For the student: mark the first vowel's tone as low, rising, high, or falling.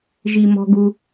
low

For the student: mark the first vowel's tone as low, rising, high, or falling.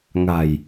low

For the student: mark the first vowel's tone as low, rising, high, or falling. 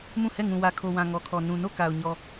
falling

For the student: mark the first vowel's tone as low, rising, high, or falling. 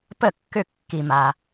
falling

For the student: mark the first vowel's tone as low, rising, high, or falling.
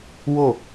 falling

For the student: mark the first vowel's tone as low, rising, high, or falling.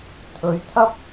rising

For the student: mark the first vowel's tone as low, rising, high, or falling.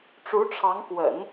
rising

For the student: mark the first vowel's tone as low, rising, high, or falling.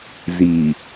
low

